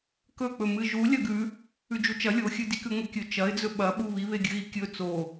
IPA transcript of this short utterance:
k ɵ k͡p ɵ m ɨ ʒ u lʲ ɐ ɡ ʉ | ʉ d͡ʒ u t͡ʃ ɐ lʲ o xʲ ɨ d i k ʉ ŋʷ e kʲ ɵ t͡ʃ ɐ ɪ̯ d͡z ɵ ɓ ɐ ɓ u β i β e ɡʲ ɨ ɣ i kʲ ɵ t͡s o

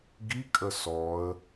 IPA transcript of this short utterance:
ɡ i kʼ ə s ɔ ə̯

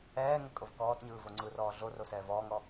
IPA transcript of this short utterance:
ɛː ŋ ɛ kʼ o v k ɔː t ɲ ɯː v o ŋ͡ǀ ɯ r ɔː ɮ o r o s ɛː v ɔː ŋ ɔ

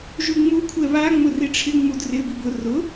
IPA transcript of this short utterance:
ʒ u ŋ͡m u kʷʰ ɛ β a ŋ͡m ʊ r i ʈ͡ʂʰ ɪ ŋ͡m u d r ɪ b i b ʊ r ʊ

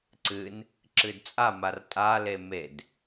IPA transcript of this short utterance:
ǀ ɨ n | ǁ ɨ d t͡sʼ a m a r tʼ a l e m e d

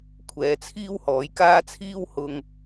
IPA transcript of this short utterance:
kʷʰ ɛː˨˧ t͡sʰ iː˥ w h ɔː˨˥ j k aː˥ t͡sʰ iː˥ w h ʊ˧ ŋ

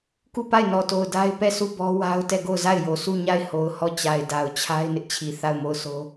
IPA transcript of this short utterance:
k u˦˨ p a˦˨ ɪ̯ n ɔ˨ t o˨ ʊ̯ d a˦ ɪ̯ p ɛ˦˨ s u˦˨ b ɔ˦ w a˦ ʊ̯ t ɛ˦˨ ɡ o˦˨ ʊ̯ z a˦˨ ɪ̯ j o˨ s u˦˨ ɲ a˦˨ ɪ̯ h o˨ ʊ̯ h ɔ˦˨ t͡ɕ a˨ ɪ̯ d a˨ ʊ̯ t͡ɕʰ a˦ ɪ̯ n ɪ˦ ʔ t͡ɕʰ i˨ θ a˦˨ ʊ̯ m o˦˨ ʊ̯ s o˦

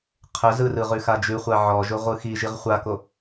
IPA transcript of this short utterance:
qʰ ə z ɯ r ɯ ʁ ʉ x a d͡ʒ ʉ χʷ a ʕ ɔ ʒ ʊ ʁʷ ɯ x i ʒ i ʁ χʷ a k o

